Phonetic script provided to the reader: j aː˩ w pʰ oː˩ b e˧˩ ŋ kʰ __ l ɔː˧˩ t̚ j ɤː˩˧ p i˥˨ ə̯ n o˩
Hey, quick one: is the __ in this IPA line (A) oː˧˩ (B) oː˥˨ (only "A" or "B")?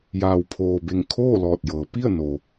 B